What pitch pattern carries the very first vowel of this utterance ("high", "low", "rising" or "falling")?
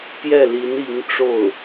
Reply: falling